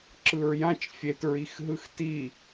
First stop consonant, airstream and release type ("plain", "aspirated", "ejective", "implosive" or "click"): click